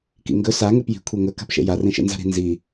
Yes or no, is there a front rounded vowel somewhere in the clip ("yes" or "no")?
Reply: no